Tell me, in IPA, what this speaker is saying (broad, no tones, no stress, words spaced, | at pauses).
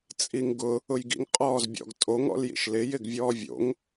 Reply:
t͡sʼiŋɡʊ | ʊjɡḭŋ qʼɔːzbʲɔ̰ɡtʼoŋ ɔ̰ljḭʃlɪ jɪɡvʲɔːvʲo̰ŋ